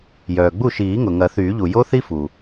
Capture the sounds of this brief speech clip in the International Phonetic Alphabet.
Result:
j œː˩ ɡ͡b u˥˩ ʃ iː˨˩˦ ŋ ʊ˩ ŋ ɐ˨˩˦ θ yː˨˩˦ ʎ u˩ j o˦˥ θ i˦˥ f u˩

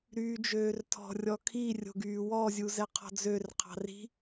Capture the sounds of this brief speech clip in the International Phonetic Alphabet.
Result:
ɾ yː d͡ʒ øː r tʰ ɔ̤ rʲ ɔ kʰ i rʲ o̤ ɡ yː w ɔ zʲ u z ɛ qʰ ɔ̤ d͡z ø r qʰ ɑ̤ r i̤

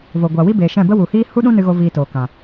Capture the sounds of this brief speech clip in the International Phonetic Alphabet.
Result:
v o˨ ɡʷ a˨ w i˦ b eː˨ ʃ ɛ̃˦˨ b ə˦ w u˨ h iː˦ h u˦ ɗ ũ˦ n ɨ˦ ɣ o˦ v iː˧ t oː˨ k ã˨

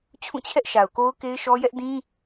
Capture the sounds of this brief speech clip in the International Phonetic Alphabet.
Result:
t͡ɕʰ ũ˦˨ t͡ɕʰ ɛ˦ ʔ ʃ a˨ ʊ̯ k o˦ ʊ̯ k e˦ ɪ̯ ʃ ɔ˦ j ɛ˦ ʔ d ĩ˦

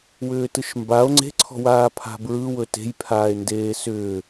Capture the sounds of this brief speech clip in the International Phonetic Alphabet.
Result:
w ʏː t ɯ ʃ m b a o̯ ŋ͡ǀ e̤ ǀʰ ɔ̤ w aː pʰ a̤ b ɹ ɯ w ɵ t e̤ j pʰ aː e̯ n d eː s ʏː

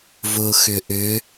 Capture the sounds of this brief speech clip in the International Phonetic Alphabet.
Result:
v ʊː x ʏ ʔ ʏ

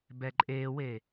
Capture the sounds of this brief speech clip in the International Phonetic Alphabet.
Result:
b ɛ ǃʼ e w e

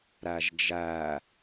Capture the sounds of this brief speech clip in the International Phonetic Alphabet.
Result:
ɾ æ ʒ d͡ʒ æ

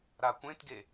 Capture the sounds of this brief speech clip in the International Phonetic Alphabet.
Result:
ɾ a kʷ ẽ t ɡ e

